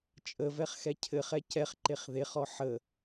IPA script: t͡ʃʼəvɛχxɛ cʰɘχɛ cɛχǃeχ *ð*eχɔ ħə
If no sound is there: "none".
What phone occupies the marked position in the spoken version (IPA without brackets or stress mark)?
ð